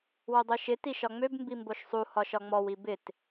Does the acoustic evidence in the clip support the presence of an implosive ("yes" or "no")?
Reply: no